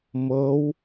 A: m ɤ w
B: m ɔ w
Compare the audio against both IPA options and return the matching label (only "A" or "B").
A